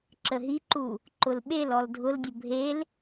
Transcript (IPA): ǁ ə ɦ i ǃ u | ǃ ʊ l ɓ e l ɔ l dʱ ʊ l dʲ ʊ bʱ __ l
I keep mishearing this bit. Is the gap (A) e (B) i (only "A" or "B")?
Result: A